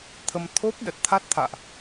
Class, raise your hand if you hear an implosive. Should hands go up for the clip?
yes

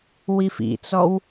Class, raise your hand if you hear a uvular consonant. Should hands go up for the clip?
no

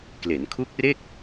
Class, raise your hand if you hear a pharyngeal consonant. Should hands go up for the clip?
no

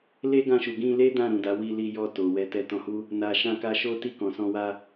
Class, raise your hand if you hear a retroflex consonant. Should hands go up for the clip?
no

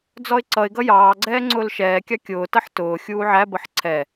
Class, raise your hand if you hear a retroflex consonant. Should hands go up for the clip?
no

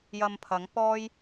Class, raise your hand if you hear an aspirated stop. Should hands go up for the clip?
yes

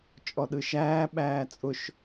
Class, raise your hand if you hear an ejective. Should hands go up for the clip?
yes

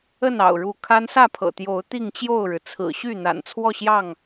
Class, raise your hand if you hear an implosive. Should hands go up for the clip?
no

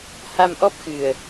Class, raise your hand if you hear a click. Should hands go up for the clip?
no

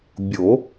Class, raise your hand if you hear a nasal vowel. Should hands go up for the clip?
no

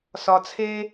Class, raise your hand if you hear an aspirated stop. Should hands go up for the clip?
yes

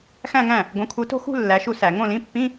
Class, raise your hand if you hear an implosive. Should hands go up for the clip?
no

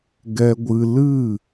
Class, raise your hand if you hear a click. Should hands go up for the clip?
no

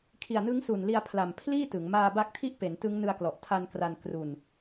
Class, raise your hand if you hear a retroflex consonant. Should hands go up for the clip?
no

